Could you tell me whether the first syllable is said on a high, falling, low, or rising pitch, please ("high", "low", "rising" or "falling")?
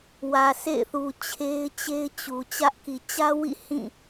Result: low